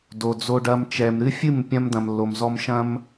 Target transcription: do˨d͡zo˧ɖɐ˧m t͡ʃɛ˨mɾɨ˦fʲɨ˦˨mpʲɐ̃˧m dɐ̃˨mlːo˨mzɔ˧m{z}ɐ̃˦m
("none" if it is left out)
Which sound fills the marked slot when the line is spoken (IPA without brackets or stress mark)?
ʃ